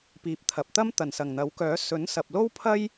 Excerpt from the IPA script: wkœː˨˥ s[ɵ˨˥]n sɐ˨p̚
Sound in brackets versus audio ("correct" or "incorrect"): correct